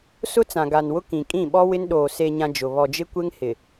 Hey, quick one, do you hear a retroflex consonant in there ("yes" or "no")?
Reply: no